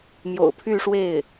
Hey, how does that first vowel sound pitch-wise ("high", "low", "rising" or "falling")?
low